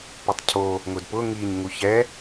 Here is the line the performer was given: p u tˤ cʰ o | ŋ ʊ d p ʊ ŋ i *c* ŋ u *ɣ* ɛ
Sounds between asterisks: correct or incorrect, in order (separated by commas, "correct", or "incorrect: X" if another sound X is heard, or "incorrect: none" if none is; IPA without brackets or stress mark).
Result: incorrect: ɲ, incorrect: ç